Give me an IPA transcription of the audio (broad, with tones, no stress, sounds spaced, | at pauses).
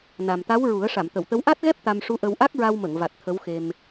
n a˨˩ m t̪ a˧˥ w ɹ u˨˩˦ ə̯ ʂ a˨˩˨ m t̪ ə˨˩˨ w t̪ ə˧˥ w ʔ a˦˥ t̚ ɣ ɛ˦˥ p̚ t̪ a˧ m ʂ u˧˥ ʔ ə˧ w ʔ a˦˥ k̚ ɹ a˧ w m ə˨˩˨ ŋ v a˨˩ t̚ t̪ʰ ə˧˥ w x e˧ m